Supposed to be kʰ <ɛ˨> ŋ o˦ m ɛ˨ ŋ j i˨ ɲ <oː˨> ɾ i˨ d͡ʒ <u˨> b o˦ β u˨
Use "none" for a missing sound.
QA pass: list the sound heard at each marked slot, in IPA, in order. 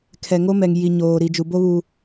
ɛ˨, oː˨, u˨

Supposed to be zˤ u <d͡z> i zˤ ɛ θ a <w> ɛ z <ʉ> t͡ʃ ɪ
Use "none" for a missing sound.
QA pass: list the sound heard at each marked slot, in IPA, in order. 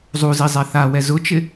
z, w, ʊ

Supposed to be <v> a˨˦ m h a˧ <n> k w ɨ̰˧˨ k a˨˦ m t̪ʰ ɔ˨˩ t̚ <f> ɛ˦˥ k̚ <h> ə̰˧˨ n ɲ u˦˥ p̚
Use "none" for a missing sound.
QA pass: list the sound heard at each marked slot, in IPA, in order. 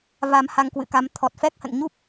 v, ŋ, f, h

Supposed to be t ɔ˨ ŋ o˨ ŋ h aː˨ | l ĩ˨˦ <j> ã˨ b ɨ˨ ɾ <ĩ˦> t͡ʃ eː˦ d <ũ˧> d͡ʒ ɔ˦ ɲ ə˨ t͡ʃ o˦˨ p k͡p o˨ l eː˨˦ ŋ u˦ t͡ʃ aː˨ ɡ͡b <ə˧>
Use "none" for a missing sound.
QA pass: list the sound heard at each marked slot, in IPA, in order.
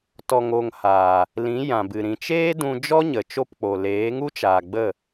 j, ĩ˨, ũ˧, ə˦˨

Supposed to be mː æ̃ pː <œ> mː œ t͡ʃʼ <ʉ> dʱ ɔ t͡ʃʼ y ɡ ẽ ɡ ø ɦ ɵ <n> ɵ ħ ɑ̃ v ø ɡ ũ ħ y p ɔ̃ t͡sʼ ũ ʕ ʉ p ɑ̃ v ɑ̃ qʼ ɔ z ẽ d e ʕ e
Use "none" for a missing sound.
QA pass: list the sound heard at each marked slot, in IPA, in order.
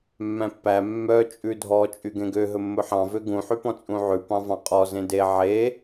æ, ʉ, mː

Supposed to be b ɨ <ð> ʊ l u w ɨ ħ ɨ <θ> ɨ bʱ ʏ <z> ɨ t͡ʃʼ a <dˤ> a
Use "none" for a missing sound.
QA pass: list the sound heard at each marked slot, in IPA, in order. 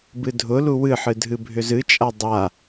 dʱ, dʱ, z, dˤ

